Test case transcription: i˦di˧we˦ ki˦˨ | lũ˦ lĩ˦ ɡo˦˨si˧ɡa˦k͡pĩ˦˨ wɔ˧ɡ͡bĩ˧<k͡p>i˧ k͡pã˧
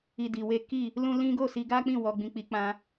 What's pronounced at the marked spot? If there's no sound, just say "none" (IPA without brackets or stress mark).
k͡p